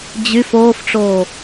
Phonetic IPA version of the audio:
d͡ʑ y f oː f ʈ͡ʂ oː

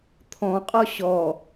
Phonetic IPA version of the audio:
t̪ʰ ɔ̃ qʼ ɔ ɕ ɔ

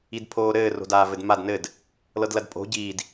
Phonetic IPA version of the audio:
i d pʰ oː ɾ ɘː r o̤ d aː v ɘ d m a d n ɘ d | l ɤ d l ɐ d pʼ o̤ ɟ iː d

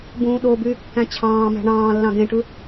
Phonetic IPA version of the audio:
b ũː ɗ o b yː kː æ̃ t͡ɕʰ ɑ̃ː m æ̤ ɳ ɑ̃ː lː ɑ̃ ɡ ẽ ʈ ɯ

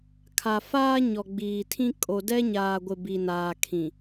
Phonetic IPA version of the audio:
kʰ a˨ f aː˦ ɲ ɔ˨ ɡ͡b iː˨ tʰ ĩ˦ kʼ o˨ d ɛ˦ ɲ aː˨ ɡʷ ɪ˨ b i˨ n aː˨ kʰ ĩ˨

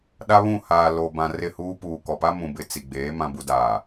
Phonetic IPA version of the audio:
ɗ a˦ β ũ˦˨ h aː˨ l o˨ b ã˨ r ɪ˦˨ h uː˦ p uː˨ k ɔ˨ p a˦ m ũ˨ b ɪ˨ t͡s i˨ ɡ͡b eː˨˦ m ã˨ b u˨ d aː˨

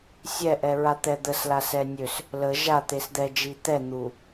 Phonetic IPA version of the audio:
sʲ ɛ ʔ ɛ ɹ a t̪ ɛ d̪ ə s l a s ɛ nʲ ø s | l ə ʒ a t̪ e s d̪ ɛ d͡ʒ i t̪ ɛ n̪ u

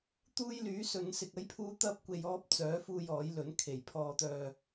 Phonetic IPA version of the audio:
t̪ uː˥ j l yː˨˥ s ɵ˨˧ n s ɪ˨ k̚ ɐ˥ j pʰ uː˥ t̪ ɐ˥ p̚ kʷ e˧ j ɔː˥ p̚ t͡s œː˨˥ f uː˧ j ɔː˨˥ j l ɵ˨˥ n kʰ e˨˩ j pʰ ɔː˨ t̪ œː˨

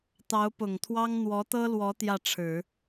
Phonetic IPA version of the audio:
t̪ ɑ˧˥ ʊ̯ p ʊ˨˩ ŋ t̪ʰ w ɑ˥ ŋ n̪ w ɔ˧˥ t̪ ɤ˥ l w ɔ˧˥ t̪ j ä˥˩ ʈ͡ʂʰ ɻ̩˨˩˦

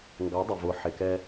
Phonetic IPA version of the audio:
ŋ ɡ ɑ˨˦ dˤ ə˨ v ʊ˨˦ ħ ɪ˨ k ɛ˦

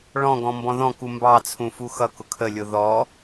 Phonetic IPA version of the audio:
ɭ ɔ̃ ɡ ɔ̃ m b ɔ̃ ð ɔ̃ k u m b ɑ t͡sʰ ũ f u x ʌ k ʊ kʰ ə lʲ ʊ ð ɔ

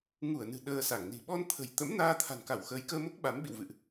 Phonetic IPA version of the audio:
ŋ u˧˩ ə̯ n ɨ̤˨˩ ɗ əː˧ s a˧˩ ŋ n i̤˨˩ ɓ ɔ˧ n t̪ʰ ə̤˨˩ j t̪ ə̰˧˥ m n aː˧ t̪ʰ a̤˨˩ n k a˧˩ w x əː˨˦ j k əː˧ m o˦˥ k̚ ɓ a˨˦ m ɓ ḭ˧˨ w v ɨ̰˧˨ ʔ

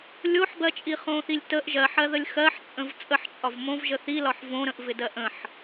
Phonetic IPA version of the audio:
lʲ o ħ b ɜ t͡ʃʼ i χ õ θ i lʲ t ə ʔ ʒ ɜ ħ ɜ ð ə lʲ x ɜ ħ t͡sʼ ə̃ v t͡sʼ ə ħ t͡ʃʼ ɒ v m õ v ʒ ə θ i l ɒ ħ v õ ɾ ə̃ ʔ v ɪ d ɜ ʔ ə̃ ħ

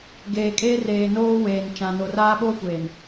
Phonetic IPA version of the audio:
ɡ eː˨ kʼ eː˦ r eː˨ n oː˦ w eː˨ n t͡ʃ ã˨ n o˨ r aː˦ ɓ oː˦ kʷ eː˨ n

